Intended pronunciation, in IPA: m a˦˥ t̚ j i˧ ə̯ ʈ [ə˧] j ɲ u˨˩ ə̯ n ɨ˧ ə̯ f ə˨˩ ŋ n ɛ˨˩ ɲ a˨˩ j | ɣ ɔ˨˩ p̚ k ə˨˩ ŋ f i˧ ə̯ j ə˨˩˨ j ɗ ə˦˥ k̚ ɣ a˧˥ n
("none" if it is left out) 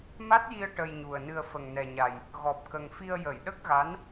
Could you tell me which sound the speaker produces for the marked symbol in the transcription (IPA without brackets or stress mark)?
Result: ə˧